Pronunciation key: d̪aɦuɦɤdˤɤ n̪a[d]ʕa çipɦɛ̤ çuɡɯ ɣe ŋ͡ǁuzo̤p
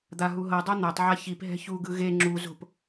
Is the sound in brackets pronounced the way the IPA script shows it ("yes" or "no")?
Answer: no